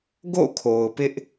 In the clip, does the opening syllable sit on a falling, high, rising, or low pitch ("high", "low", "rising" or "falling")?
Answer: falling